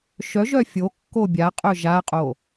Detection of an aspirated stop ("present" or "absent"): absent